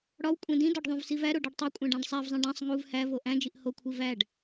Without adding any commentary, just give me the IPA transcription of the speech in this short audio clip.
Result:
ɽɒw kʷʼẽdĩdɒɖ ðˤũvsivæɾo ɖɒɖtˤokʷʼæ̃ ɖæ̃ɖsˤævzˤĩ ɖæ̃sˤ ŋuv hævo ʔæ̃d͡ʒiʔ hokʷʰi væɖ

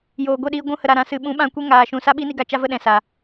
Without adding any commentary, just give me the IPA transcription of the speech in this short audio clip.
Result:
joː˨ɡʷe˦˨ɗiː˧ ɡʷũ˧hə˨ɾa˨ɾã˨˦ sɨ˨ɓũ˨˦ɓã˧kʷe˦ ŋaː˧ʃũ˧ sa˦ɓi˦ni˧ɡa˧ t͡ʃa˦və˧ɗɛ̃˨ sa˨

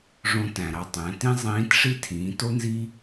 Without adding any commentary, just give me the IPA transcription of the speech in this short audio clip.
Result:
ʐõ˧tæ̃˩ɾɑ˧tˤæ̃˩˧ tĩ˥ zˤĩː˧˥tʂi˥ tʰĩː˩˧to˥nzi˥

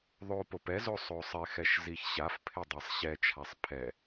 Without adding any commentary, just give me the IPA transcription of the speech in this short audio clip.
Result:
ðˤopop ɛzo sˤosˤɪxɛʃ ziçɕafpʰɪ dˤɛsˤɕɛt͡ʃʰasˤ pʰɛ

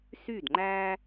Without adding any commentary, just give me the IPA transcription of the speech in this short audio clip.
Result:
sy˦˨dŋ͡ǃæː˦

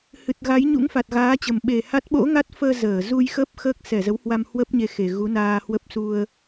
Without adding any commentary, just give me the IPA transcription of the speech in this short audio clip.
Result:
hɨ˨˩t̚ɣa˨˦j ɲṵ˧˥ŋfa˨˩t̚ɣaː˨˦t͡ɕə˨˩m ɓe˨˩ha˦˥t̚ ɓo̰˧˥ŋa˦˥t̚fəː˧ zəː˧˩ zu˧jxə˦˥p̚ xəː˦˥k̚sɛ˧˩zə˨˦whwa˧m hwə˦˥p̚ɲe˨˦ xe˨˩ɣu˨˦naː˧hwə˦˥p̚ su˧ə̯

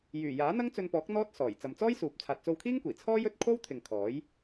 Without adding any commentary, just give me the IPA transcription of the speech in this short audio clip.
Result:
jyː˨˩jaː˨˥ n̪ɐ˥ŋt͡sɵ˧npɔː˨˥k̚ n̪ɔː˥t̚sɔː˨˩j t͡sɐ˨mt͡sɔː˥j suː˨p̚ t͡sʰaː˨t̚t͡so˧wkʰiː˥ŋkʷiː˨˩ t͡sʰɔː˥ jɵ˥t̚ kʰo˥wt̪ʰɪ˨ŋ kʰɔː˨˥j

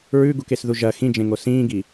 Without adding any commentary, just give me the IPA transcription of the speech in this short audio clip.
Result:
ɹʉɡukesðu ʒɐ xĩd͡ʒẽŋo sĩːɡi

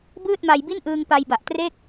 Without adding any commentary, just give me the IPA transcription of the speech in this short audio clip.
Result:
bɯː˥˩t̚ma˧jbi˥˩nʔɯː˧ŋ pa˧jba˨˩ʔtre˥˩k̚

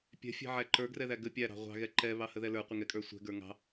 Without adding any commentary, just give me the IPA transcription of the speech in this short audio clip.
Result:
pʲɛ̤fʲɛ̤ ʕæǃə˞ɡrɛðæ ɡə pʲæɾɑ̤ ʁʷɑ̤ɣɛ ǃɛ βɑhəðɛlə˞ qʷɪŋɛkʼə˞sʷɛ̤ ɡə˞ŋɑ̤

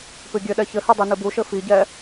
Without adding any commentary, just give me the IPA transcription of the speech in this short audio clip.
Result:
pɨɡʲɘɗɛ çɘhɛ dˤinɨbuʃɘ fiɟɛ

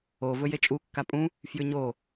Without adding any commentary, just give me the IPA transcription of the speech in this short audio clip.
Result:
o vɵjet͡ʃʼu kːapʼũ | fjʉɲo

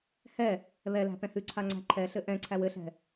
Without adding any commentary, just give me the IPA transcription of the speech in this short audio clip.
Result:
hɛ | βɛlæ̤ pɛ̃hʉǀʰa ŋ͡ǀæ̤ǃʰɛɬɘ ʔɛ̃ǀʰæw ɘɬɛ̤

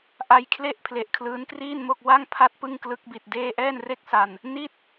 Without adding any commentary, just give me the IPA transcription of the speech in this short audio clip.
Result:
ʔa˧jkʰle˥˩ʔ pʰle˨˩ʔkʰlɯː˦˥nkriː˥˩nmo˥˩k̚ wa˥˩ŋ pʰa˥˩t̚pɯ˥˩ŋ klɯ˦˥k̚bi˨˩t̚deː˥˩ ʔɛː˥˩nre˥˩k̚sa˧n | ni˥˩t̚

